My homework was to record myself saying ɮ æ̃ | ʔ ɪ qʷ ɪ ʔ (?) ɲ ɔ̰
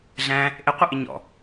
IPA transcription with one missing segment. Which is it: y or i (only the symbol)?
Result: i